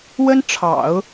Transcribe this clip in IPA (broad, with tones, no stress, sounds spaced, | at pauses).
w ə˥ n ʈ͡ʂʰ ɑ̰˨˩˦ ʊ̯